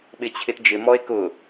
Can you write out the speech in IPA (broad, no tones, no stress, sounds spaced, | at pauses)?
ɓ ɪ t͡ɕʰ ɪ t d͡ʒ ɪ m ɔ e̯ k ʊ